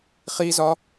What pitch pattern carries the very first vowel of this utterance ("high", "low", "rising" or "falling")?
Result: high